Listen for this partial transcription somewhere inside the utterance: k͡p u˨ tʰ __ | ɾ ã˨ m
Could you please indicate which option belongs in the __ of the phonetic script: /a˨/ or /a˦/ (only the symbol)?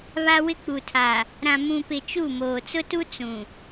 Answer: a˨